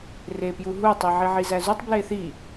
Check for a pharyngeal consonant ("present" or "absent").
present